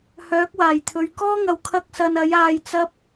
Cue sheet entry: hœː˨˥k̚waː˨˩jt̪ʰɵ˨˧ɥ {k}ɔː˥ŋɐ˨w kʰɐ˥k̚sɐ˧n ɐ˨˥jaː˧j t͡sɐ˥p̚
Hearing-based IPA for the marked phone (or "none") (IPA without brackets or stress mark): k